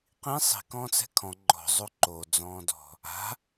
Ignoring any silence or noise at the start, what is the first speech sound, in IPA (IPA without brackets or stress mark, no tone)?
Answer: q